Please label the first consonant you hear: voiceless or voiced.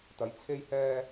voiceless